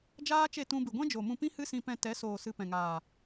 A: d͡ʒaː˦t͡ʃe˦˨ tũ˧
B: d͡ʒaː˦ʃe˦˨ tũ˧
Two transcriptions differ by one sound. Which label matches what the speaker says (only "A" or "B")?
A